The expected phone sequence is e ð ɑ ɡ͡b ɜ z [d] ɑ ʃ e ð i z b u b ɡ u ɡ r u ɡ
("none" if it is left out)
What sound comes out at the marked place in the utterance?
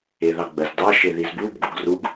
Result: d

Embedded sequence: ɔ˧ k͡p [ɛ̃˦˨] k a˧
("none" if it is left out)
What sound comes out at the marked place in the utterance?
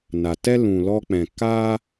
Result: ɛ̃˨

